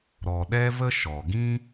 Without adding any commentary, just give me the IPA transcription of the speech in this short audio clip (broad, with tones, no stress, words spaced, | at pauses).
ɾɔ˨ɗɛ˦və˦ ʃɔ˨ ɡĩ˦